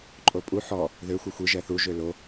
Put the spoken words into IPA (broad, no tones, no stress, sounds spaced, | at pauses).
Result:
ǃʼ o pʼ u ħ ɔ | ð ø xʷ ɛ xʷ i ʒ ɛ θ u ʒ ø l o